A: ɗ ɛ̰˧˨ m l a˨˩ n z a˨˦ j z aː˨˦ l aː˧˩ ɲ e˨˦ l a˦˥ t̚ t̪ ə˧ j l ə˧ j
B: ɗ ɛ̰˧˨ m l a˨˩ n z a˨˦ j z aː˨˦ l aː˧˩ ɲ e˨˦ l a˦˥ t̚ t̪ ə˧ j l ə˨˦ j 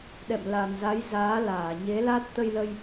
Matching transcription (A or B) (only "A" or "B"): A